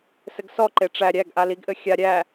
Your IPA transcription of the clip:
s ɘ ɡ s ɔ ǃ e ʈ͡ʂ æ ɾʲ æ ɡ ʔ a l i ɡ ʔ ɘ xʲ a ɾʲ æ

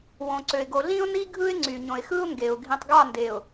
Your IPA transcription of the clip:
w õ˨ ǀ ø˨ ɪ̯ ɡ o˨ ɮ ĩ˦ ʊ̯ n i˦ ɡʱ ɯ˦ ɪ̯ ŋ͡ǀ y˨ ɲ õ˨ ɪ̯ x ɯ˦ ʊ̯ ŋ ɡ e˨ ʊ̯ ɡʱ ĩ˨ tˤ ɡ ɑ˦˨ n d e˨ ʊ̯

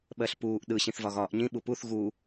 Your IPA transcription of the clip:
ɓ ɜ ɬ p uː ʔ ɗ ɯ ɕ ĩ θ v ɒ ɣ ɒː ʔ ɲ ĩ ɓ u p u θ ɣ u

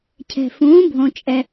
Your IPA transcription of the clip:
cʰ ɛ̤˩ f ũː˩˥ bʱ õ˩ t͡ʃʼ ɛ˩

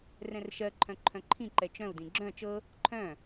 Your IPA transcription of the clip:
r ɛ̃ r ʃ ɜ ǃʰ œ̃ ǃʰ œ̃ ǃʰ ĩ ǃ ɛ t͡ʃ œ̃ u̯ d ĩ ɡ͡ǁ œ̃ t͡ʃ ɤ | ǃʰ œ̃

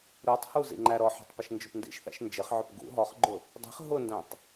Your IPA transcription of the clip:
ɾ u tˤ h u z ḭ ŋ͡ǃ æ ɾ ɔ ħ ɔ̤ tˤ p ʊ ʃ n d͡ʒ ʊ p n d ḭ ʃ θ æ̰ ʃ n d͡ʒ ɪ χ ʕ ʊ p ɡ ṵ ɦ ɔ χ ɡ͡ǃ ʊ | dˤ i̤ χ ɦ ʊ n d æ̃ tˤ

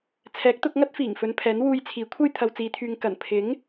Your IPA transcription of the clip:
t͡sʰ ɛː˨˥ k̚ t̪ ʊ˧ k̚ ŋ ɐ˥ t̚ f iː˨˩ ŋ f ɵ˨˧ n pʰ ɛː˨˥ n w uː˧ j t͡sʰ iː˨˥ kʷʰ ɐ˥ j t̪ʰ ɐ˨ w t͡s iː˨ t̪ʰ yː˨ ŋ k ɐ˨˩ n pʰ ɪ˨˥ ŋ

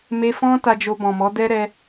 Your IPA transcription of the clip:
m e˧ f ɔ̃˦ t a˧ d͡ʒ o˧ b ɔ̃˨ m ɔ˨˦ d ɛ˦ ɾ ɛ˧

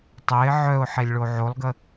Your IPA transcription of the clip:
tˤ ɛ ɪ̯ ʕ œ ʊ̯ ħ e lʲ ɭ o ʕ o lˠ ɡ ə

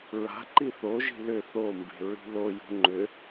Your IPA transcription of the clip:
ɹ a̤ ǃ i θ o ʒ i̤ l ʏ θ o m b e̤ ɹ i̤ l o j ṳ ŋ͡ǃ ʏ

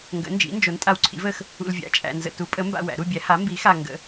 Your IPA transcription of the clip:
ŋ ɡ ə̰˨˥ n d͡ʒ ḭ˨˥ n d͡ʒ o˨˥ n tʼ a˧ w ǀʰ ḭ˨˥ v ə˧ x | ṵ˧ l vʲ a̰˨˥ t͡ʃʼ æ̰˧ n z ə̰˧ t u˨˥ pʼ ə˨˥ m b a̰˧ w æ̰˨˩˦ ɾ u˧ bʲ æ˨˥ h a˨˥ m b i˨˥ x a˧ ŋ ɡ ə̰˨˥

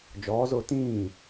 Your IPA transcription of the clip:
d͡ʒ ɔː z ʊː t ĩː

